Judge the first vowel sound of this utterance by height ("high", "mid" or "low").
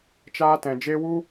low